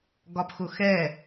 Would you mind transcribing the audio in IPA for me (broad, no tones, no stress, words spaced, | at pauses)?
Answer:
ɡɒpxʊxɛ